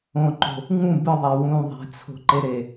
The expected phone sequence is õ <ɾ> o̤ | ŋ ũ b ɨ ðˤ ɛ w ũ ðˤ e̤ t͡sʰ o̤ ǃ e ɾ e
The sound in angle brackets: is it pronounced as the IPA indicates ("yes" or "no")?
no